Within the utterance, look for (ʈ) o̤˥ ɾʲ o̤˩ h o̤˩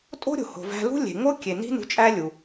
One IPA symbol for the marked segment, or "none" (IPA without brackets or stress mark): tʼ